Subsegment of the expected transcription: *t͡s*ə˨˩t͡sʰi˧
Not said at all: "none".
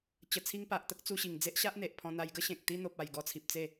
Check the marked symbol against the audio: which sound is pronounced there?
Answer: t͡ɕ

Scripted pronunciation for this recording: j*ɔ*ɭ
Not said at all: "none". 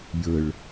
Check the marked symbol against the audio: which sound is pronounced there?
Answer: ə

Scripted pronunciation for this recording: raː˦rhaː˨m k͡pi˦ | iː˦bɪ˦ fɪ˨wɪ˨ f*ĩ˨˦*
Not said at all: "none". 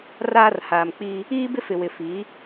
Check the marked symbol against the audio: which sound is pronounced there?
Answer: i˨˦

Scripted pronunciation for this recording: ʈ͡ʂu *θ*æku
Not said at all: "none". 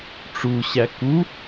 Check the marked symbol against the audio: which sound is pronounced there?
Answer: ɕ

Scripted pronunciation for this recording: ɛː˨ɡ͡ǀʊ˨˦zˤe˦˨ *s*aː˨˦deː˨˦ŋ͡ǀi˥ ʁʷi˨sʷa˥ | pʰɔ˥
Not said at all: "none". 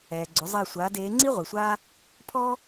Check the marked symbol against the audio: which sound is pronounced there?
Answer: sʷ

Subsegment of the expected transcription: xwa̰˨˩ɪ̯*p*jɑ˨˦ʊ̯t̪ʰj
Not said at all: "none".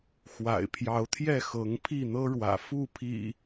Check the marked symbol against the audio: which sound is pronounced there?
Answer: pʰ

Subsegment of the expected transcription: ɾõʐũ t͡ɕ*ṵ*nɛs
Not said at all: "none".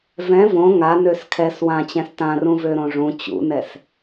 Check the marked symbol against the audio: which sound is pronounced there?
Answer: ṵ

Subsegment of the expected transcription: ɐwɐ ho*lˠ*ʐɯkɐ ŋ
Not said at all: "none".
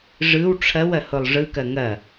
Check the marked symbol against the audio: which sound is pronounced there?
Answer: lˠ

